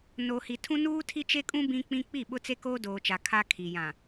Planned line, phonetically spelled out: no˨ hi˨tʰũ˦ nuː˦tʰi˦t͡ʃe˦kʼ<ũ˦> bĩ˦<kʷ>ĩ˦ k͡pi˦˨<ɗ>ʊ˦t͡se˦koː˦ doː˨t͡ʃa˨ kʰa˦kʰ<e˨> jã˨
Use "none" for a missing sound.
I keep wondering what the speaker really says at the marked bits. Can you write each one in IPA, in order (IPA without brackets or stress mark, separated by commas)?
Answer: ũ˦, k͡p, ɓ, i˨